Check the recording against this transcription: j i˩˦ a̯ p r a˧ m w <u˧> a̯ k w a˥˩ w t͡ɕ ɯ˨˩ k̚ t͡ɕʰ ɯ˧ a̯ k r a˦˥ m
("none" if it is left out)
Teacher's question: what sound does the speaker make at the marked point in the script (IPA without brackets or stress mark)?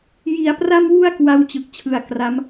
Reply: u˧